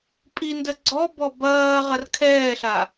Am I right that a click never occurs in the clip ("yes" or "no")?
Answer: no